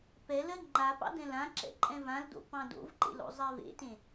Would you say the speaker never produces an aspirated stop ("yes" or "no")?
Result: yes